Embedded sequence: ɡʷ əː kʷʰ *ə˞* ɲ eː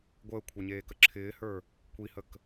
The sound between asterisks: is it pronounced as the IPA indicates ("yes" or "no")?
yes